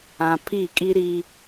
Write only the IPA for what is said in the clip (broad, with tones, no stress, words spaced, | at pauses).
ã˨ pʰi˦˨kʼi˦ ɾi˦